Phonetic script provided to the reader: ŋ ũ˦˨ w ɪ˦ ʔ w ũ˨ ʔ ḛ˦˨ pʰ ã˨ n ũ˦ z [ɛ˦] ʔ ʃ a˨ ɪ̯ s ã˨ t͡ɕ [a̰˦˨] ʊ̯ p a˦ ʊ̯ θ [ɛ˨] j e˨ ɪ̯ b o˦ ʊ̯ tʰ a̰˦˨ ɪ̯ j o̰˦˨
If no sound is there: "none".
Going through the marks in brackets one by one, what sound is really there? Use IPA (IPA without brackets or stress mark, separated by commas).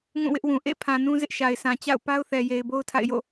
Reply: ɪ˦, a̰˦˨, ɛ˨